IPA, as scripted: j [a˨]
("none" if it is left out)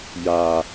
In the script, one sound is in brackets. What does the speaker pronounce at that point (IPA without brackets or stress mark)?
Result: a˨